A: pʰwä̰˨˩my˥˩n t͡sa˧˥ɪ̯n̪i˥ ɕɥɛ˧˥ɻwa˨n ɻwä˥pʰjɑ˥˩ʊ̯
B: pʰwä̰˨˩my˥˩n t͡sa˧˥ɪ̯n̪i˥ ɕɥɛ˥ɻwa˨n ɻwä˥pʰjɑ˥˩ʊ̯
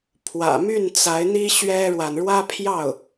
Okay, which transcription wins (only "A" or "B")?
B